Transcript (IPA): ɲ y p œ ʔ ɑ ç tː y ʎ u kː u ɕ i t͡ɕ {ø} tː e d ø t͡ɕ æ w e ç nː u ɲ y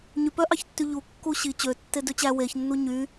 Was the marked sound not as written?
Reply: no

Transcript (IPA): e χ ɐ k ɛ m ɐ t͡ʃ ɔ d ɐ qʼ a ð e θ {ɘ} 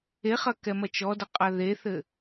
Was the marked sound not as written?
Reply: no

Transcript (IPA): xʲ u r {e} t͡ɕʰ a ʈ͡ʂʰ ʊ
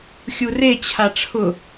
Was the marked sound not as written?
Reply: no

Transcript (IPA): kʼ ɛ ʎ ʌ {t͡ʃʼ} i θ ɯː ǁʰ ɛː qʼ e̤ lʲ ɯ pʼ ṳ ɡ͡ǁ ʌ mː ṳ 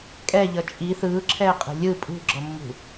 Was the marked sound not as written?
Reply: no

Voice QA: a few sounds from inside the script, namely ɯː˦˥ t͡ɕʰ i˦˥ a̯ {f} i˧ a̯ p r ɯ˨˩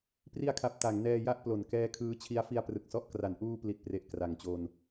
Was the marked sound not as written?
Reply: no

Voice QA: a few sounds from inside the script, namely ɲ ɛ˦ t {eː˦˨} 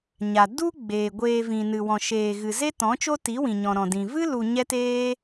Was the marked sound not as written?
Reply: yes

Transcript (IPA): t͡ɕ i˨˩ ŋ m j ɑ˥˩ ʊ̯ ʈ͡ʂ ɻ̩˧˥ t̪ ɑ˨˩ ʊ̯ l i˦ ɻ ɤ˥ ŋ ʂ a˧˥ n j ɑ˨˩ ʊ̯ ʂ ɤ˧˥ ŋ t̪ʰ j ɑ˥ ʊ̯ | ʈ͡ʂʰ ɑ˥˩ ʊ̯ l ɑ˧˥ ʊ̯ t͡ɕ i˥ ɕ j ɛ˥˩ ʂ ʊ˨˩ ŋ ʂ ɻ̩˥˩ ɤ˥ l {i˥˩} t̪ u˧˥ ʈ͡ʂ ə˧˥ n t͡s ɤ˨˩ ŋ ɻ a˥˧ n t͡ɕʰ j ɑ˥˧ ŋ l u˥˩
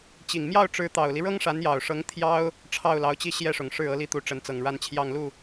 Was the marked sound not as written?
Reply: no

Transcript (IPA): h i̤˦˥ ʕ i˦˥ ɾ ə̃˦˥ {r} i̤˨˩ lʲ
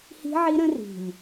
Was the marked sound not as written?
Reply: no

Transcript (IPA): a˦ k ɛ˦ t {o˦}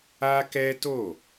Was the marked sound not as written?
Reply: yes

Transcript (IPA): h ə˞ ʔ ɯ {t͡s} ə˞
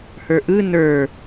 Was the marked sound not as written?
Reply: yes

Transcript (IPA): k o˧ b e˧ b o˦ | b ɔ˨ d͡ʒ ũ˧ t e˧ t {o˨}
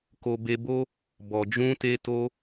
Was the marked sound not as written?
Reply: yes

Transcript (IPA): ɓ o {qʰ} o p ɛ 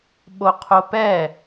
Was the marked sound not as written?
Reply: no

